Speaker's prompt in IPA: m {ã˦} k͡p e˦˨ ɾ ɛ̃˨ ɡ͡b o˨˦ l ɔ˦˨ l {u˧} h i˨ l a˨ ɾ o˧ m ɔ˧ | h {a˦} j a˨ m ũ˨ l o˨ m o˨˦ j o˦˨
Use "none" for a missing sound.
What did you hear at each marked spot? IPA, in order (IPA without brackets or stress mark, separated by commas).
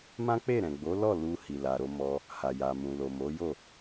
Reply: ã˦, u˧, a˨